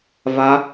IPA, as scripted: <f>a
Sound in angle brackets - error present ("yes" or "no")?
yes